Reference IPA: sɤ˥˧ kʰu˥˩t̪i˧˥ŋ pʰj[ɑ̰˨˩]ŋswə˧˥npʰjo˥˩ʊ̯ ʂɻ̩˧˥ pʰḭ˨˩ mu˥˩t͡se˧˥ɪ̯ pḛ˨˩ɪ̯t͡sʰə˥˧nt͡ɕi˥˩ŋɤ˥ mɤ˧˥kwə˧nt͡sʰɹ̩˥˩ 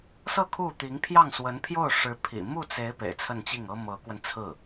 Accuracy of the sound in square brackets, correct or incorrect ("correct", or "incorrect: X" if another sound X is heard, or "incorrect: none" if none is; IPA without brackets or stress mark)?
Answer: incorrect: ɑ˥˩